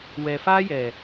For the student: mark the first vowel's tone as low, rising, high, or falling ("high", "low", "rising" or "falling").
low